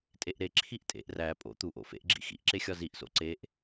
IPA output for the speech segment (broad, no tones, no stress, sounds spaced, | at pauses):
tʼ e ʔ ɾ e ǁʰ i ʔ tʼ ḛ ʔ r æ pʼ o̰ t̪ u ʔ o̰ f ḛ ʔ ɡ͡ǁ ḭ x ḭ ʔ ǁ e xʲ ɒ z i ʔ s o̰ ǀ e ʔ